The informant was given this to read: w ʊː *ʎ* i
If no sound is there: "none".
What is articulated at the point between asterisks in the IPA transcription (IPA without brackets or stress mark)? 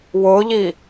ʎ